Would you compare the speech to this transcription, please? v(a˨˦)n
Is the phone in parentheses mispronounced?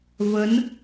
yes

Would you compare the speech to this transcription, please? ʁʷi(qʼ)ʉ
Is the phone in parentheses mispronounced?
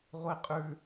no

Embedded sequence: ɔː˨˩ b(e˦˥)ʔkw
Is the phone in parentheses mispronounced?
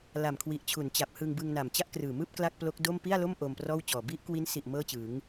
yes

